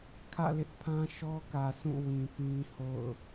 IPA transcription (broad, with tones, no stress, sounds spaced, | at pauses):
kʰ ä̰˦˨ l ɪ˦ ʔ pʰ ã˦ ʃ ɔ˦ k ä˨ sʰ ũ˦˨ w ĩ˨ p ĩ˦ h o̰˦˨ ʊ̯